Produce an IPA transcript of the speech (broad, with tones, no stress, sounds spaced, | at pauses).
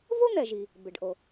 v o˥ n̪ ɛ˩ ʒ i˩ | b ɪ˩ ɖ ʔ o˩